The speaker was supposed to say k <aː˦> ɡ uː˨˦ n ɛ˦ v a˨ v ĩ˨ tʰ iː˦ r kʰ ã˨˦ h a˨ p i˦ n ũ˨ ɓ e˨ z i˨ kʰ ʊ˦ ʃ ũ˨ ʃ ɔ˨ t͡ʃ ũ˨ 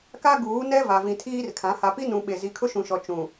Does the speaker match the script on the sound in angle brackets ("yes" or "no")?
no